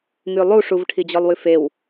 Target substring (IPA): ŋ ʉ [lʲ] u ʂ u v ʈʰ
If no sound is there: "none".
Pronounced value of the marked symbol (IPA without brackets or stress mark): lˠ